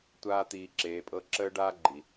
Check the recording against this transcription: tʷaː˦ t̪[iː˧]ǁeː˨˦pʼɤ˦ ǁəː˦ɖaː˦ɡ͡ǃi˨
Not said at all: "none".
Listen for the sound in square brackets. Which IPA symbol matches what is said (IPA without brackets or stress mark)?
iː˧